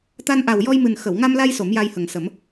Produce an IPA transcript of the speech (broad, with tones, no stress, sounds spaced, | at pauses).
t̪ a˧ n ʔ a˨˩ w j ɔ˧ j m ɨ˨˩ n x ə˨˩˨ w ŋ a˧ m l a˧ j s o˨˩˦ m j a˧ j h ə˨˩ ŋ s ə˨˩˦ m